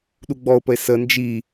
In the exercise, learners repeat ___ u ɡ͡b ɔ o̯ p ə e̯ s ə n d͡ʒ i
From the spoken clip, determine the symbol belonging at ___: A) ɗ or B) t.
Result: A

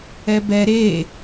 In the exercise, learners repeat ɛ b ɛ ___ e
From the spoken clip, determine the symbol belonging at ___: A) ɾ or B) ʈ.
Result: A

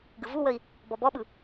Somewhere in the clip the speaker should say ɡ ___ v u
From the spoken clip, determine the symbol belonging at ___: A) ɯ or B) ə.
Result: A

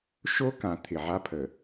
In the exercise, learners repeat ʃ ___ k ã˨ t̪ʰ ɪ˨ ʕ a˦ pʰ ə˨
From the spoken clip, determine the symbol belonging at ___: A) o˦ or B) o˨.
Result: A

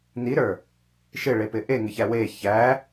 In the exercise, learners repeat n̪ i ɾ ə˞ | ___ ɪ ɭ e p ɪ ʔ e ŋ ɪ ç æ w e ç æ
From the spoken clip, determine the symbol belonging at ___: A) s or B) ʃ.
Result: B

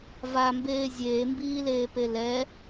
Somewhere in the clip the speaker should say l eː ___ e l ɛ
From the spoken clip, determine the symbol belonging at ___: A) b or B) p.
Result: B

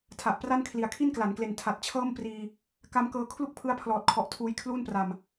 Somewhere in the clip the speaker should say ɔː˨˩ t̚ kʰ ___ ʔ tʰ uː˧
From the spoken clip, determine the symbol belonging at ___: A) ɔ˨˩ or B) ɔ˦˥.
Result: A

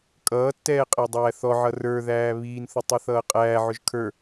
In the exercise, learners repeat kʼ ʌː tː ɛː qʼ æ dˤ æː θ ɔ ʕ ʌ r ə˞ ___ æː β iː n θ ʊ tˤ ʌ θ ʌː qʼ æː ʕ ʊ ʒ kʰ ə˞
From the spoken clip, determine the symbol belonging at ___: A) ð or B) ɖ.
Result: A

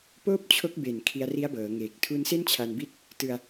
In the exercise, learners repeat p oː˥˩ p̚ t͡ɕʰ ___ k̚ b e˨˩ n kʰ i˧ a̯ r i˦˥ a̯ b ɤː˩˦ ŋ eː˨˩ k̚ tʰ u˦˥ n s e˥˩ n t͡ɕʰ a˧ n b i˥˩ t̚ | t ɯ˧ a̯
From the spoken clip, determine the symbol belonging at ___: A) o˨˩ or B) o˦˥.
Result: B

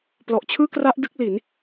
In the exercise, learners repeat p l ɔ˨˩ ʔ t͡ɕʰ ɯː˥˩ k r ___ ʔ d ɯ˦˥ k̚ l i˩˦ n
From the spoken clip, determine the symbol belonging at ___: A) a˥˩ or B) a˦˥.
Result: B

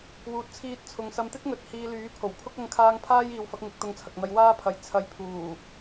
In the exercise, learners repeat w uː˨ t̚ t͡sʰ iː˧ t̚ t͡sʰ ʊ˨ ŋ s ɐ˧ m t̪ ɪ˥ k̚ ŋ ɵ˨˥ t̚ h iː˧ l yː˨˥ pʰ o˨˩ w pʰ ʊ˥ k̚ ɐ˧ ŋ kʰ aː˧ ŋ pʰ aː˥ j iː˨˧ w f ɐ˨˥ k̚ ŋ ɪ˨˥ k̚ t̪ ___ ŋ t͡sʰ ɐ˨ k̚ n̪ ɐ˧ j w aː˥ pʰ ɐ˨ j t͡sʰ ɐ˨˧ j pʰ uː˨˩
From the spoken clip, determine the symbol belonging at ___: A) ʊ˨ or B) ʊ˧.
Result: B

